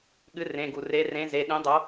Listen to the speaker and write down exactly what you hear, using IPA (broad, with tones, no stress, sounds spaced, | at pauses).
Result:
ɠ ɨ˨˥ r ẽ˩˧˩ ɡ u˩ r e˨˥ r ẽ˨˥ z e˩˧˩ ɗ ĩ˨˥ dˤ o˨˥